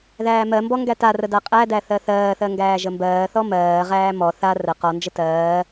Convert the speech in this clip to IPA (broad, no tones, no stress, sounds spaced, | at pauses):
ð æː m ɜ m b ɔ ŋ ɡ æ t a r ə d a qʼ æ d æ θ ɜ θ ɜː θ ɜ ŋ ɡ æː ʒ ə m b ɜː θ ɔ m ɜː ʁ æː m ɔ θ a r ə q ɔ n d͡ʒ ə t ɜː